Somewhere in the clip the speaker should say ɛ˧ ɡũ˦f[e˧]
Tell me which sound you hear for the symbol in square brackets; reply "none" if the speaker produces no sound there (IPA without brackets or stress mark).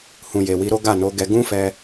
ɛ˧